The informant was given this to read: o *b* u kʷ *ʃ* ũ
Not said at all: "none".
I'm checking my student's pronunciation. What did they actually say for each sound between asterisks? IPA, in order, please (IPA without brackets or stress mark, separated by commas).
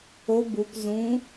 b, z